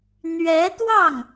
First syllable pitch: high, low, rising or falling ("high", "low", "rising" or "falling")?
rising